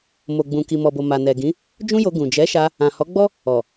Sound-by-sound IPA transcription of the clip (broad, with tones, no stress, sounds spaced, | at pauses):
m o˨ ɡ͡b ũ˨ k i˨ m ɔ˨ b o˨ m a˨ n ɛ˨ ɡ ĩ˨˦ | d͡ʒ ũ˦ j o˧ ɡ ũ˨ d͡ʒ ɛ˨˦ ʃ a˧ | ã˨ h ɔ˨˦ ɡ͡b ɔ˦ | ɔ˨